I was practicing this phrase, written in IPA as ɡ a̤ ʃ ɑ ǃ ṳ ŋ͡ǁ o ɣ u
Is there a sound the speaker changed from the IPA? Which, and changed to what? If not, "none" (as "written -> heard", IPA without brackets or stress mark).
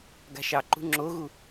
none